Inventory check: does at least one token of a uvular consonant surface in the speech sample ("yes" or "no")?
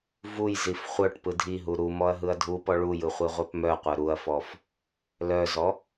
yes